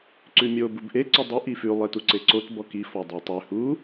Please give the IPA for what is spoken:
ǀ ʉ mʲ o b u b ʔ e ǀ o dˤ ʉ ʔ i f ʉ lˠ e t u ǀ e ǀ o t b ɔ k i f ɔ dˤ ʉ tˤ ʉ h u

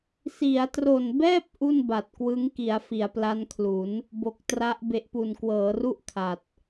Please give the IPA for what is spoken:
s i˩˦ a̯ t r o˨˩ n b ɛː˥˩ p̚ ʔ u˥˩ n b a˨˩ t̚ k w ɯ˦˥ ŋ k i˩˦ a̯ f i˩˦ a̯ p l a˦˥ n kʰ l u˩˦ n | b o˨˩ k̚ t r a˦˥ ʔ b e˨˩ ʔ p u˨˩ n k w ɤː˩˦ r u˥˩ ʔ kʰ a˨˩ t̚

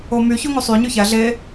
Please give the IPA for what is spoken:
o m y ç o ŋ u sˤ y ɲ y ç æ ɮ e

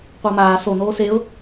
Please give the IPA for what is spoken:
qʷ əː m aː s o n oː s e ʊ̯

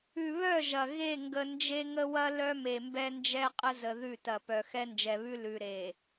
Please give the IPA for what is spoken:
ʉ˨ β œ˦˨ ʒ ɐ˨ ɣ e˦˨ ŋ ɡ ə˨ n d͡ʒ e˦ ŋ ə˦ w ɐ˦ l œ˦ m e˨ m b ɛ˦ n d͡ʒ ɛ˦ qʼ ə˦ z ə˨ ð ʉ˦˨ t ɐ˨ p œ˨ x ɛ˦ n d͡ʒ ɛ˨ β ʉ˦ l ʉ˨ ɾ e˨

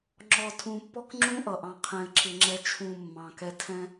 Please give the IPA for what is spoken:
ŋ͡ǁ ɔ˨ tʰ ũ˨ pː ɔ˦ k ŋ͡ǁ ũ˦ ʔ ʌ˨ ʔ ɑ̃˦˨ qʰ ɛ̃˦ ɪ̯ ǁ ɪ˦ ŋ͡ǁ ɛ˦ t͡ʃʰ ũ˦˨ mː ɑ̃˨ k ɛ˦ tʰ ɛ̃˦

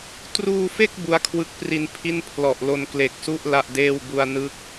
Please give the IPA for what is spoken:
t r uː˧ f e˥˩ k̚ b u˦˥ a̯ kʰ w ɯ˦˥ k̚ p r i˧ n pʰ i˥˩ n pʰ l ɔ˨˩ ʔ l o˧ n k l e˨˩ k̚ s u˥˩ ʔ l a˥˩ ʔ d eː˥˩ w b u˧ a̯ n ɯ˦˥ k̚

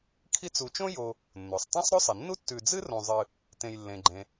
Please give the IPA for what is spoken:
kʰ i˦ t͡s u˨ t͡ʃ õ˥ j o˨ | nː o˩ sˤ tˤ ã˥ sˤ ɾ ɵ˥ sˤ i˩ nː u˥ tː ʉ˨ d͡z ɨ˥ r õ˨ zˤ ɨ˨ | t ẽ˨ j lː ẽ˩ ɡ͡ǃ ẽ˩

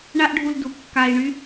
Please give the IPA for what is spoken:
ɳ a˦ ʔ ɖʱ u˧ l d u˨ kː a˧ i̯ ɳ y˦

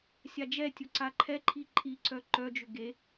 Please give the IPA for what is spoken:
sʲ a d͡ʒ ɛ tʲ ʊ ǀ a ǃʰ ɛ ǃʰ i ǃʼ i ǀ œ ǃ œ d͡ʒ ʏ ɡ e

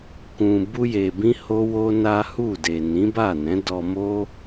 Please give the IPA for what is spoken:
k ũ˨ b u˧ j e˨ b ĩ˧ h o˦ w o˦ n a˦ h u˦˨ d e˨ n ĩ˨˦ b a˦˨ n ɛ̃˨˦ d ɔ˧ m o˦

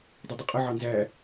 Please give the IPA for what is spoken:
dˤ ə dˤ ə qʼ ə ʕ ɑ n z æ

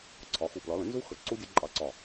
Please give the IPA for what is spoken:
ǀʰ ɒ˨˥ x u˧˩ p l ɒ˨˥ l ə̃˨˩˦ n z u˦˥ x ə˧˩ ǀ u˦˥ dʲ ʌ˨˩˦ ǃʼ ɑ˨˩˦ ǀ ɒ˧˩

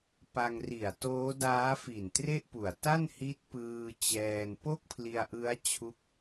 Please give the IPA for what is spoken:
p a˧ ŋ r i˨˩ a̯ t oː˦˥ d aː˦˥ f i˨˩ n t r e˥˩ ʔ p u˨˩ a̯ t a˥˩ n h i˦˥ t̚ p ɯː˧ t͡ɕ ɛː˧ n p o˥˩ k̚ pʰ l i˧ a̯ ʔ ɯ˦˥ a̯ t͡ɕʰ u˦˥ k̚

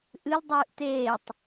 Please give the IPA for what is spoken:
ʔ ɨ l dˤ ɨː ʔ t eː tˤ

